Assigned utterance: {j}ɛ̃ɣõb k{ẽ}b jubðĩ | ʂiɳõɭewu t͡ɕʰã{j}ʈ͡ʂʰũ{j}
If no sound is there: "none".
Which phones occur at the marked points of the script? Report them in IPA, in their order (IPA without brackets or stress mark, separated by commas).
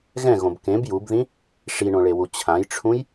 ɣ, ẽ, j, j